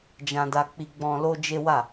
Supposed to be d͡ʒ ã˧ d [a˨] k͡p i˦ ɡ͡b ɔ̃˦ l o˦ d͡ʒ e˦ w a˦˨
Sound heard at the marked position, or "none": a˧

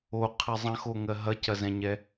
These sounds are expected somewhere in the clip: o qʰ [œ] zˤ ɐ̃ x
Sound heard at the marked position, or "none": ɛ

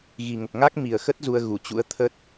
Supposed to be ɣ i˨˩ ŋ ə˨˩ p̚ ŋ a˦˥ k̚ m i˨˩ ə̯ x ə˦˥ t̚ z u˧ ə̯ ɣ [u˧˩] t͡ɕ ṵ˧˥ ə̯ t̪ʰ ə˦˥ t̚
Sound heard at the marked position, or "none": u˧˩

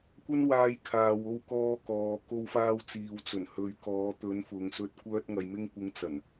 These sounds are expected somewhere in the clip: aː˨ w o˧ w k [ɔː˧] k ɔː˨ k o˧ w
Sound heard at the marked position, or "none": ɔː˧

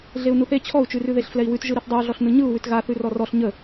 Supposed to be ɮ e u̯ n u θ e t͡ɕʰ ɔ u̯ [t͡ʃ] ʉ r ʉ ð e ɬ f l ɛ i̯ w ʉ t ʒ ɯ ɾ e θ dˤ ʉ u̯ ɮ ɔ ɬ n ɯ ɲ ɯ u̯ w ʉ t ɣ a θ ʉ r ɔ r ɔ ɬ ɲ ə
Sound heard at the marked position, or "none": t͡ʃ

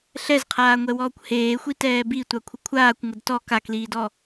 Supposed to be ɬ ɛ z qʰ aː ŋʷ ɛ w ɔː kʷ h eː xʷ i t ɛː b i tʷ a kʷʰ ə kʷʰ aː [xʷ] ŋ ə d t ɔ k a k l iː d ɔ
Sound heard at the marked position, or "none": kʷ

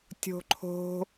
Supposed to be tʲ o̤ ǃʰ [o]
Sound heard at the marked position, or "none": o̤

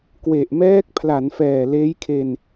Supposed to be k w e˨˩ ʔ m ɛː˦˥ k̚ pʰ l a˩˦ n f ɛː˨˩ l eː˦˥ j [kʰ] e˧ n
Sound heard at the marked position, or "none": kʰ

